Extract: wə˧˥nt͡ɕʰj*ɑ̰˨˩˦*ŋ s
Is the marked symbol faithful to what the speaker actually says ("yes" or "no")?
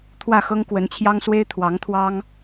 no